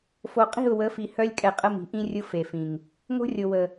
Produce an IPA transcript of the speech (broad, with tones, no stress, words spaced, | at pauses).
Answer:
fo˨qʼi̤˦˨ʊ̯wə˨˦fi˨ hœ˦lʲkʼɛ˨ qʼə˦mi̤˨ʔĩ˦rʲʊ˦ fe˨fĩ˨ŋ | ŋo̤˦rʲo˨wə˨